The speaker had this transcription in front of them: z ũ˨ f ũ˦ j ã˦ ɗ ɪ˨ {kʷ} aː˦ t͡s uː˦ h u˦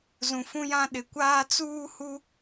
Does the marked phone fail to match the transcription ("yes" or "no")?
no